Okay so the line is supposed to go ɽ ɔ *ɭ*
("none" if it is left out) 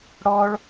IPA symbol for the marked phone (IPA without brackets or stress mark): ɭ